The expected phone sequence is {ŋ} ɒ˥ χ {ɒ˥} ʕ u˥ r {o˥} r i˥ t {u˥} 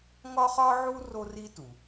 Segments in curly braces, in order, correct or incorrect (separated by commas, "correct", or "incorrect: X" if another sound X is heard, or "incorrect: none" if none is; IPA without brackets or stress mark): correct, correct, correct, incorrect: u˩